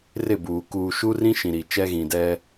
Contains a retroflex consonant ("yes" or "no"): no